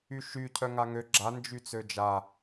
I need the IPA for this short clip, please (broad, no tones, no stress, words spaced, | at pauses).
yʃy cʰœŋaŋø ɡ͡ǁa nd͡ʒyt͡sød͡ʒa